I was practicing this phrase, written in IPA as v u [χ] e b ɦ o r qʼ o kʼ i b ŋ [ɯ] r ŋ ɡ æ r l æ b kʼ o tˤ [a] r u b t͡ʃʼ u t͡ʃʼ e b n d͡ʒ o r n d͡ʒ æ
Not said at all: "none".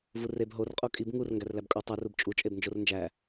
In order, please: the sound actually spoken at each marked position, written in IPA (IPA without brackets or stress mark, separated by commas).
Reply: r, u, æ